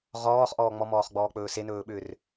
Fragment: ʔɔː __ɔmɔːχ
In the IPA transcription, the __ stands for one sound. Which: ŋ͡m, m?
ŋ͡m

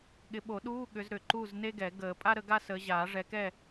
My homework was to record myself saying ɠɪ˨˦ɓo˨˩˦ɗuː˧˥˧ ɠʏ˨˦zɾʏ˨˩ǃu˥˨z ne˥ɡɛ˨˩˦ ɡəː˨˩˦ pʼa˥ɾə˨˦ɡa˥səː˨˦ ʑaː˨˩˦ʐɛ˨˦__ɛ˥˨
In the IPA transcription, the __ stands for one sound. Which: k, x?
k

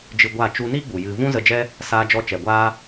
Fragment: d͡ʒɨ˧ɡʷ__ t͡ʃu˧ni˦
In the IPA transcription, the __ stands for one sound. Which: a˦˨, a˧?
a˦˨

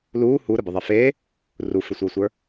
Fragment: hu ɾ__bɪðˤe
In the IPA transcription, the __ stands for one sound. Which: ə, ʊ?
ə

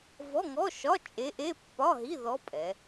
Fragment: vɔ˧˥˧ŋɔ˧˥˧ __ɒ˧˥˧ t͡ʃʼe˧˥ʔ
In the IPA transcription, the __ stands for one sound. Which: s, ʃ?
ʃ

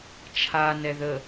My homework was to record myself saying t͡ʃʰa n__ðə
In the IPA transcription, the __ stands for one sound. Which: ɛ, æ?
ɛ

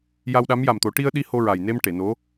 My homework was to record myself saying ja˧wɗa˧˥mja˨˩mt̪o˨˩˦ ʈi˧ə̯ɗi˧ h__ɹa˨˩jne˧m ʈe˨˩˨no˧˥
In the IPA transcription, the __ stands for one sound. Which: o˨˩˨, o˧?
o˧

